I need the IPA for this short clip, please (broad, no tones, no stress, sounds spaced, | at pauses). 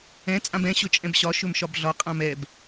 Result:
ɛ̃ t͡sʼ ã b ɛ̃ ɕ ɵ t͡ʃʼ ɛ̃ b ɕ ɒ ʃ ɵ m ʃ ɒ b ɮ ɒ qʼ ã m ɛ b